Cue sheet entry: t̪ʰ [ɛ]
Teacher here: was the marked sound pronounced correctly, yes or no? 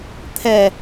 yes